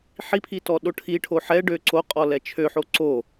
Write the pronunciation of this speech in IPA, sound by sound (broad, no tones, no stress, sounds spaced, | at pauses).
ħ i pʰ i t ɔ ɗ o ʈʰ i ʈʰ o ħ ɛ ɖ ø ǀ o qʼ ɔ l ɛ t͡ʃʰ ø ħ o ǀ o